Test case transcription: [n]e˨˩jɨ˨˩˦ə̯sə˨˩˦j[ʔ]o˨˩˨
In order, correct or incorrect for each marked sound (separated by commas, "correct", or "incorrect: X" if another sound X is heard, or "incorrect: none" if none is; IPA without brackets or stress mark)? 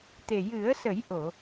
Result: incorrect: t̪, correct